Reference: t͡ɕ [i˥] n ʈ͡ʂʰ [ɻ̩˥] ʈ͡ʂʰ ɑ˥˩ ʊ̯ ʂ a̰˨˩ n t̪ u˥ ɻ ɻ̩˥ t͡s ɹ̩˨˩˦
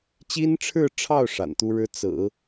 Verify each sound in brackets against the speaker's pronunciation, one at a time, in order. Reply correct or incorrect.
correct, incorrect: ɻ̩˥˧

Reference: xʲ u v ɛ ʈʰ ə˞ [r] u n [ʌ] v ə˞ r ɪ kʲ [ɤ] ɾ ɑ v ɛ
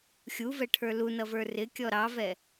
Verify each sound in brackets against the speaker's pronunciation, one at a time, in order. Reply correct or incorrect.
incorrect: l, correct, incorrect: ɔ

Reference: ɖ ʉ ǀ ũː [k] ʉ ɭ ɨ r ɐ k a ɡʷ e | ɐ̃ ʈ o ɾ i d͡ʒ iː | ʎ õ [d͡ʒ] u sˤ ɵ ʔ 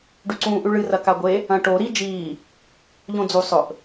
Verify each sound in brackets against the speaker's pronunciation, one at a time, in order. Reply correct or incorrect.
incorrect: ʔ, incorrect: d͡z

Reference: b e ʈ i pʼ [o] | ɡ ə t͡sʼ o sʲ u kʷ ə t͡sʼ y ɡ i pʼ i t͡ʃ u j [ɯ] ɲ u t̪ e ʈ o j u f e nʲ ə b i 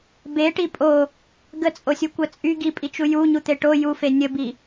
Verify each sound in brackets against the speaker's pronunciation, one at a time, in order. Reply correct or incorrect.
correct, incorrect: u

